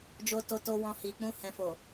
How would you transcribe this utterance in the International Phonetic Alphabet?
d͡ʒo˧to˧to˧wɔ̃˧ hi˨k͡pũ˧ hɛ̃˨fo˨

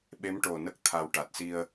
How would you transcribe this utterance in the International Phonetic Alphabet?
ɓe˧˥mʈo˨˩nə˦˥k̚ t̪ʰa˨˩w ʈa˨˩t̚si˧ə̯

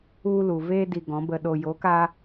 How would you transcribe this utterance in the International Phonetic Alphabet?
u˧ lu˨veː˧ di˧ɡɔ̃˨˦bə˧ɗo˧ jo˨˦ka˧

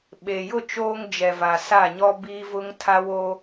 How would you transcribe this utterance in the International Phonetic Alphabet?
ɓe˨jʊ˦˨ t͡ʃoː˦ŋd͡ʒɛ˨va˨ sa˦˨ɲɔ˦ biː˦vʊ˦ŋ tʰa˦wo˦

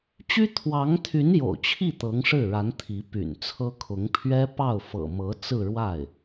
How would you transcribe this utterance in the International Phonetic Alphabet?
t͡ɕy˥ t̪ʰwɑ˧˥ŋt̪ʰy˧˥n jo̰˨˩ʊ̯t͡ɕʰi˥˩ t̪ɤ˧˥ŋʂɻ̩˥˩ɻa˧˥n t̪ʰi˧˥py̰˨˩nt͡sʰɤ˥kʰʊ˧˥ŋ pʰɥɛ˥ pɑ˥˩ʊ̯fɤ̰˨˩ mɤ˧˥t͡sɹ̩˥˧ ɻwa˥˩ɪ̯

